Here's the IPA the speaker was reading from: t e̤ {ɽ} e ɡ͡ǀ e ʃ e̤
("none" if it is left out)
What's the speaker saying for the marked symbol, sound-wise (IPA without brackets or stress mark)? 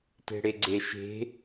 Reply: ɽ